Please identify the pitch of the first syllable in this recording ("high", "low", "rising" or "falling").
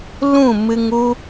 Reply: falling